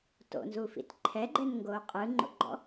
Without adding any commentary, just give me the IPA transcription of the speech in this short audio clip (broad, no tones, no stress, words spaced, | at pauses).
to̰nzufḭt ǃʰɛɡ͡ǃɛnŋɡoː qʼɯŋ͡ǃo̰ɡ͡ǃɔ̰